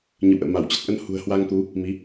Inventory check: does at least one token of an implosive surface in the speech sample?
no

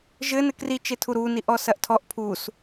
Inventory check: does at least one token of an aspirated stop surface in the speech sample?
yes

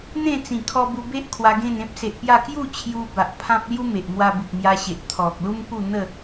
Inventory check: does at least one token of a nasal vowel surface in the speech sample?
yes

